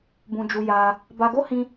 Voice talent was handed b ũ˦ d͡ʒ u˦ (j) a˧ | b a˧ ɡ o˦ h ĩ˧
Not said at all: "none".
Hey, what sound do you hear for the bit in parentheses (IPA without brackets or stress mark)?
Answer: j